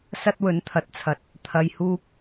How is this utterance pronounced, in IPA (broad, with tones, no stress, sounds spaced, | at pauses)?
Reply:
s ɐ˥ t̚ w ɵ˨˥ n t̪ʰ ɐ˨ t̚ t͡sʰ ɐ˨˥ t̚ | t̪ʰ ɐ˧ j h uː˥ k̚